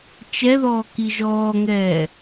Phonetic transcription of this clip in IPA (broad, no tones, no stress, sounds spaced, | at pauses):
t͡ʃ ɛ ð ɔː k i ʒ ɔː ŋ ɛː